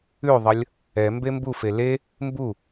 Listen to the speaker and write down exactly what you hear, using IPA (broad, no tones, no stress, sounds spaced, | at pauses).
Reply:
ʉ ðˤ ʌ lʲ | ɛ m b e m b u f e l e | m b u